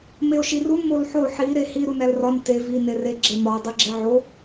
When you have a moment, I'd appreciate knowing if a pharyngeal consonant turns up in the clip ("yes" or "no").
yes